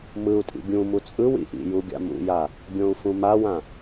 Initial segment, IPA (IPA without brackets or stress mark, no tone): m